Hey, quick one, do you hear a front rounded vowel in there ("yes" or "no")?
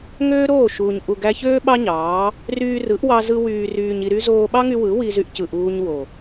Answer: yes